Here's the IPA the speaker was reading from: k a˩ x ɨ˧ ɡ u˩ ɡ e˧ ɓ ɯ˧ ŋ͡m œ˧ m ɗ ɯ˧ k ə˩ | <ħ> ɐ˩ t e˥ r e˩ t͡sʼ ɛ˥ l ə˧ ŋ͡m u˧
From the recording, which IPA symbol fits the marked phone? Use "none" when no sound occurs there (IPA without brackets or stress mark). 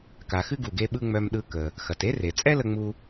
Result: x